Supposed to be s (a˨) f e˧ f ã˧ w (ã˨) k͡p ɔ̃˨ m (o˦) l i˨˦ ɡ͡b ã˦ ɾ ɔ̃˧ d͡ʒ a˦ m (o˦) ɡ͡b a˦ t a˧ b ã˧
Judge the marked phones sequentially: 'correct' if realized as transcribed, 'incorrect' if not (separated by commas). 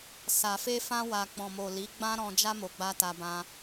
correct, incorrect, incorrect, incorrect